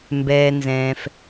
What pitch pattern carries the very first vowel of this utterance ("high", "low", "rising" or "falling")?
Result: low